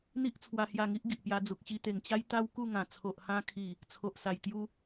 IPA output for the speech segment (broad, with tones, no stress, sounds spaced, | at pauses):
n̪ i˦ ʔ t͡sʰ w a˧ h j a˧ ŋ i˦ ʔ ɡ i˨ ʔ p j a˧ d͡z u˨ k̚ ɕ i˧ t̪ e˨˩ ŋ t͡ɕ a˦ j t̪ a˦ w k u˥˧ ŋ ã˨˩ t͡sʰ o˨ ʔ h ã˧ kʰ i˨˩ | t͡sʰ o˨ ʔ s a˨˩ j t̪ j u˦